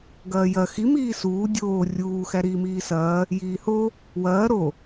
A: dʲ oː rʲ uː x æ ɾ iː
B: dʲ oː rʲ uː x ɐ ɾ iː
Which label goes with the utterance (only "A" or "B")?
A